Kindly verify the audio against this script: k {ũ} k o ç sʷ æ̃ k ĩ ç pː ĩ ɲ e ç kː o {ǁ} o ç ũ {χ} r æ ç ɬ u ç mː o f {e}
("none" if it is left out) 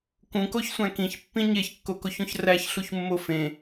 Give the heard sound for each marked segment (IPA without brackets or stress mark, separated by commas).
ũ, k, ç, ẽ